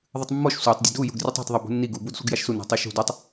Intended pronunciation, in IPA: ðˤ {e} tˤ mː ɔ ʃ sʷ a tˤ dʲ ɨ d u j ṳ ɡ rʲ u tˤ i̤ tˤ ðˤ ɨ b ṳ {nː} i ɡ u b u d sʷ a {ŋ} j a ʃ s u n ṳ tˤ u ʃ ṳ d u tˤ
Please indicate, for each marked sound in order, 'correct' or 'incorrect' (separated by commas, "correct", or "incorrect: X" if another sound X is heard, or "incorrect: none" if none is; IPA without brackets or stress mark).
incorrect: ɨ, correct, incorrect: ɡ